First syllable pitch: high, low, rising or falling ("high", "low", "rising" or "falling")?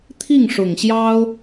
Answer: falling